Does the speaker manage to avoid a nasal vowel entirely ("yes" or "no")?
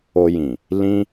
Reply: no